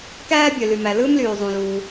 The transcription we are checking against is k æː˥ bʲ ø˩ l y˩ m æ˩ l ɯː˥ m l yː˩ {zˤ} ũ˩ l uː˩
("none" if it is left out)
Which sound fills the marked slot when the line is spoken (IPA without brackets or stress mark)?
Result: zˤ